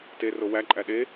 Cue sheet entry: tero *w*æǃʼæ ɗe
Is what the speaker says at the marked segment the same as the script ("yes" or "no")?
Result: yes